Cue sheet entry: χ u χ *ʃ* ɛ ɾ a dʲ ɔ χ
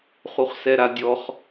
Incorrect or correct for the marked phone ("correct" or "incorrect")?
incorrect